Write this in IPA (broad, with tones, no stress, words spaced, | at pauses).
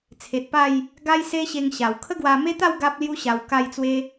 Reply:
t͡sʰe˨t̚pa˥˧j | ɡa˦jse˦ɕe˧ŋ ɕa˨˩w kʰə˦ɡwa˧ me˦t̪a˥˧w ɡa˦p̚lju˦ɕa˧w ka˧jt͡swe˧